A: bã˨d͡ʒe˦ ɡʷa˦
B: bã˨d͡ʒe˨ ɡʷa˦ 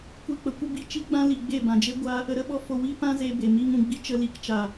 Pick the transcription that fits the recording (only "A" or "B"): A